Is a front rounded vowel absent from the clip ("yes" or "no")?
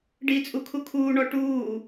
yes